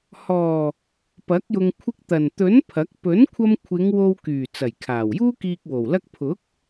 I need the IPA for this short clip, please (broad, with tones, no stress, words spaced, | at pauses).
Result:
hɔː˨˩ | pɐ˨˥k̚jʊ˧ŋ kʷʰɪ˧k̚t̪ɐ˨˩nt̪ɵ˨˥n pʰɐ˨˥k̚ pɵ˨˥nkʷʰɐ˧mkʷʰɪ˨˧ŋ wo˧wkyː˨˩ t͡sɐ˨˩jkʰaː˨˩wjuː˥kiː˧k̚ wo˨˩wlɐ˥k̚ pʰʊ˨˥k̚